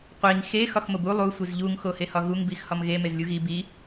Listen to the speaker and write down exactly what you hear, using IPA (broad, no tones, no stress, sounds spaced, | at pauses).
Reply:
qʷ i ŋ x e x ɒ x m o b u lˠ u sʷ i z ʎ u ŋ x o h e h ɒ ɣ u ŋ b i x h ɒ m ɣ e m e z lʲ u ɣ i b i